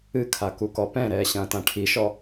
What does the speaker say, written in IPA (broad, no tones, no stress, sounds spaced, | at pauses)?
ɨ kʰ a k u k ɔ p ɛ̃ ɾ ɛː ɕ ɐ̃ː t ã ʈʰ i ʃ ɔ